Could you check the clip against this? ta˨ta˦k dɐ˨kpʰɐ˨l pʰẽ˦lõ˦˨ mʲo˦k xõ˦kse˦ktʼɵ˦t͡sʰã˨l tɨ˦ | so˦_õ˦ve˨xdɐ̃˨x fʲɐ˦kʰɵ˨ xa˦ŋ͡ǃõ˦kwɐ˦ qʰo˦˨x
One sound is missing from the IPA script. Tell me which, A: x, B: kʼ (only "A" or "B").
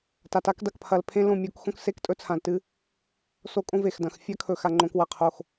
B